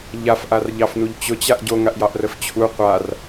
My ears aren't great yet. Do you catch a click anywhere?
no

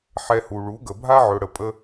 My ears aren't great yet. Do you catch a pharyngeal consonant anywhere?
yes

